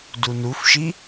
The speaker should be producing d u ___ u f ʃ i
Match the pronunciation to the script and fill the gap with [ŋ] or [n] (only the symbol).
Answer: n